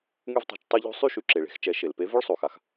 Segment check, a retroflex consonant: present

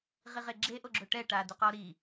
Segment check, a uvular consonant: present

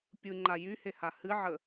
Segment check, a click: present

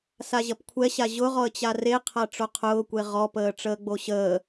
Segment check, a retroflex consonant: present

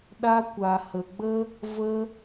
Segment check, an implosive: present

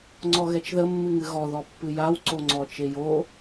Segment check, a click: present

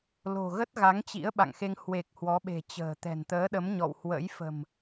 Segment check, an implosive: present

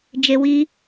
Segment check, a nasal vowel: absent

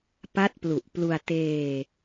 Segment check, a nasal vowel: absent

